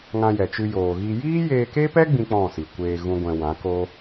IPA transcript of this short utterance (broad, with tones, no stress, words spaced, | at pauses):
ŋã˧jɛ˨t͡ʃɨ˧ joː˨ɣi˧ jiː˦jeː˧ke˦pɛ˦ ɡ͡bĩ˦k͡pɔ̃˦˨si˨kʷeː˧ ɣũ˦ɡʷɛ̃˧ wã˨˦ko˦